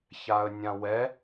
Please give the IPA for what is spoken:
ç a ə̯ nʲ ã w ɛ

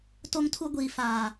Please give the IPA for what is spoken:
t o˦ ŋ tʰ u˦ ɡʷ iː˨ f aː˨

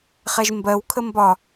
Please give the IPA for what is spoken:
χ ɛ ʒ m b ɜ w kʰ ə m b ɒ

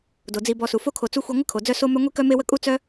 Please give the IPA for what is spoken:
d o˩ d͡z i˨ b ɔ˨ s u˩ f o˥ kʰ o˨ t͡s u˥ xʷ i˦ ŋʷ ə˥ kʰ o˩ d͡z œ˦ s o˥ m œ˥ ŋʷ i˥ k œ˥ m e˥ w ə˥ kʼ u˥ t͡s œ˥

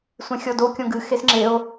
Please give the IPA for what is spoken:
sʷ ẽ xʲ ɔ d o kʲ õ ɡ ɨ x e s ŋ͡ǁ e o̯

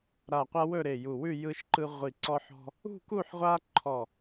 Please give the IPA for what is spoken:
ɾ a˧˩ qʷ a˦ w ɵ˥˨ ɾ e˧˩ j u˧˩ w ʉ˥˨ j ɯ˦ ʃ ǃ ɯ˦ ʁʷ i˧˩ ǀ ɔ˦ ħ ɔ̤˦ | ṳ˥˨ k u˥˨ ħ ʁʷ a˦ ǃʰ ɔ˧˩

